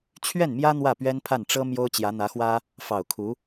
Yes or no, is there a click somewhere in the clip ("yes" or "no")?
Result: no